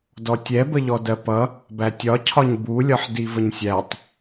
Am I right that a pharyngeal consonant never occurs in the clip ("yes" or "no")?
no